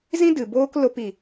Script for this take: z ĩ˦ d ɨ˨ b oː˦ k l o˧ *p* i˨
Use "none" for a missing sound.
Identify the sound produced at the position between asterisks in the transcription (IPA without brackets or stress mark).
p